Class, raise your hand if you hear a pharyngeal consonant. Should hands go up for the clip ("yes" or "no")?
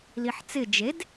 yes